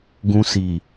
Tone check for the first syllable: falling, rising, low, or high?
high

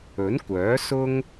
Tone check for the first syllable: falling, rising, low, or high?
rising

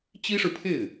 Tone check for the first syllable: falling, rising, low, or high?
high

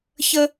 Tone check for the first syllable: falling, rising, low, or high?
high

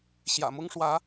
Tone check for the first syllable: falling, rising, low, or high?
low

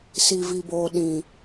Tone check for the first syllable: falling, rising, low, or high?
low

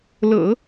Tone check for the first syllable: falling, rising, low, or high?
low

